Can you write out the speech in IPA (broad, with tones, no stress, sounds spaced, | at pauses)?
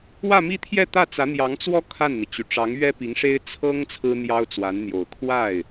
w ä˥˧ m i˥˧ t̪ʰ j ɛ˥˧ t̪ ä˥˩ t͡s ä˧˥ n̪ j ɑ˧˥ ŋ t͡s w ɔ˥ kʰ a˥˩ n n̪ i˩ t͡ɕ y˨˩ ʈ͡ʂ ɑ˧˥ ŋ ɥ ɛ˥ p i˧˥ ŋ ʂ e˥ ɪ̯ t͡sʰ ɤ˥ ŋ t͡sʰ ɹ̩˥ n̪ j ɑ˥ ʊ̯ t͡s w a˧˥ n n̪ j o˨˩ ʊ̯ kʰ w a˥˩ ɪ̯